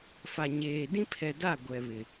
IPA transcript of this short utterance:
f a˨ ɲ eː˨ d ĩ˦ pʰ ɛ˨ d a˦˨ ɡʷ ɛ˨ β ɪ˨

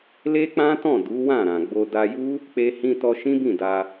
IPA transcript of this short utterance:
l e˦ k͡p ã˦ t ɔ̃˦˨ d u˨˦ w ã˦˨ ɾ ã˨ ɡ͡b o˧ d a˧ j u˦ | k͡p e˧ h ĩ˧ t ɔ˧ ʃ ĩ˦ b ĩ˦˨ d a˧

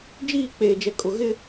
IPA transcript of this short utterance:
d͡ʒ iː˦˨ k͡p eː˨ d͡ʒ ɛ˨ kʼ ʊ˨ ɣ ɪ˦

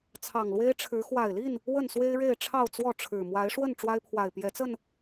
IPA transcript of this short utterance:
t͡sʰ ɑ˨˩ ŋ l w e˦ ɪ̯ ʈ͡ʂʰ ɻ̩˨˦ x w a˨˩ ɪ̯ l i˥˨ n | w ə˥˨ n s w e˦ ɪ̯ ɻ e˥˨ ɪ̯ ʈ͡ʂʰ ɑ˥˨ ʊ̯ t͡s w ɔ˥˨ ʈ͡ʂʰ ɻ̩˨˩ m w a˨˦ ɪ̯ ʂ w ə˥˨ n ʈ͡ʂ w a˦ ɪ̯ pʰ w a˨˩ ɪ̯ p j ɛ˨˦ t͡s ə˥˨ n

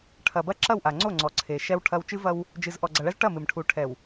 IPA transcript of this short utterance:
ʈʰ ɐ˨ b ɐ˦ ǁ ɐ˦˨ w ʔ a˨ ŋ͡ǀ o˦˨ ŋ͡ǀ ɔ˨ ǀʰ e˨ ʃ ɛ˦ w ʈʰ ɐ˦ w t͡ʃ ɨ˦ v ɐ˦ w | d͡ʒ ɨ˨ z ʔ ɔ˨ ɡ͡ǀ ɐ˨ ɭ ɛ˦ z ʈ ɐ˦˨ m ɨ˨ m ʈʰ u˨ ʈʰ ɛ˨ w

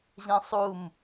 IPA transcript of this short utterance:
ʑ ɛ̃ sˤ u m

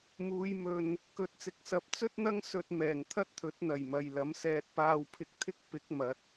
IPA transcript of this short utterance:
m uː˨˧ j m ɵ˧ n | k ɵ˨ t̚ t͡s ɪ˨˥ k̚ s ɐ˨˥ p̚ t͡s ɵ˥ t̚ n̪ ɐ˥ ŋ s ɵ˧ t̚ m ɛː˨˩ ŋ t̪ʰ ɐ˥ t̚ t̪ʰ ɵ˨˥ t̚ n̪ ɐ˨˩ j m ɐ˨ j l ɐ˨˥ m s ɛː˧ t̚ p aː˧ w pʰ ɪ˧ k̚ t̪ʰ ɪ˥ k̚ p ɪ˨˥ k̚ m ɐ˨˥ t̚

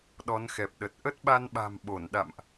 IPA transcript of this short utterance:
ɗ ɔ˨˦ n x ɛ˨˩ p̚ ɗ ə˨˩ t̚ ʔ ə˦˥ t̚ ɓ a˧ n ɓ a̤˨˩ m ɓ o˧˩ n ɗ a̰˧˨ m ʔ

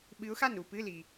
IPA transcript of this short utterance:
ɓ ɨ˧˥ ʊ̯ x a˥˨ n u˥˨ p ɨ˧˥˧ l i˩

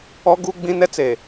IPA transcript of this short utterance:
ɔ˦ ɡ u˦ ɡ͡b ĩ˦ n ɛ˦ t͡s e˨

